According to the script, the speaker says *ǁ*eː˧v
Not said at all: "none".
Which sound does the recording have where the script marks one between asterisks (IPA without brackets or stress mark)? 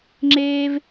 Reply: ŋ͡ǁ